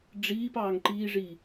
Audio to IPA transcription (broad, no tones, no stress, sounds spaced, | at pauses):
ɖ͡ʐ iː p ɑː ŋ ǃ iː ʐ i